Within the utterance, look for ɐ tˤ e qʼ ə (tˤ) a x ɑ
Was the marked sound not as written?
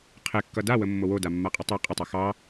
no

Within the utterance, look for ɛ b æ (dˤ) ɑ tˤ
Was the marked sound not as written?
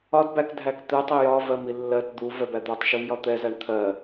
yes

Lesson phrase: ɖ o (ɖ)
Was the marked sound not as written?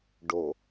yes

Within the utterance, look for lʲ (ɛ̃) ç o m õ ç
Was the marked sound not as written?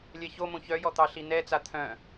yes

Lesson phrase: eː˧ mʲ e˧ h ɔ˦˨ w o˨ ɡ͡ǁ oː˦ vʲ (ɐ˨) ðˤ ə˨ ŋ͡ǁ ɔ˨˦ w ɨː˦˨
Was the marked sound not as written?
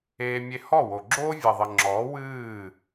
no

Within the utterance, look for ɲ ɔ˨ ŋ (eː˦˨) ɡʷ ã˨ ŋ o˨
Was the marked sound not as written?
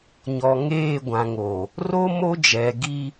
no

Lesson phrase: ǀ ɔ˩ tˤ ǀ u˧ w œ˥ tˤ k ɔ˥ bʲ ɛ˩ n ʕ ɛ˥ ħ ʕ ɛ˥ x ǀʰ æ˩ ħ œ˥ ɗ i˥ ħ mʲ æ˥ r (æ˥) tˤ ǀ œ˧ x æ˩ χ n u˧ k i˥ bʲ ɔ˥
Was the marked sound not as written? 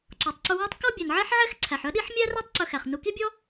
no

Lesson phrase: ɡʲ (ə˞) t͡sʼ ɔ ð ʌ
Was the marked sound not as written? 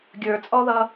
no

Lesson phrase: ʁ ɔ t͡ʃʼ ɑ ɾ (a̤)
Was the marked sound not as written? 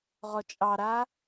yes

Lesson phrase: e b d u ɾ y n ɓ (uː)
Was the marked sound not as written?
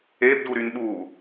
no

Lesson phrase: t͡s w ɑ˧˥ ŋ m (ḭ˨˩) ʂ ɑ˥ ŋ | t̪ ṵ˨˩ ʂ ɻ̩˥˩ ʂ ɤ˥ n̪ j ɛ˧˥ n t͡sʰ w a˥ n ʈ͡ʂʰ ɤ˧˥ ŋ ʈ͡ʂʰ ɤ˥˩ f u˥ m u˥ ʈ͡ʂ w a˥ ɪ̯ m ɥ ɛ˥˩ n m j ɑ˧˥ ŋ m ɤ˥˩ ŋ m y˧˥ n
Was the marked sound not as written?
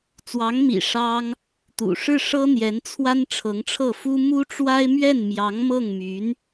no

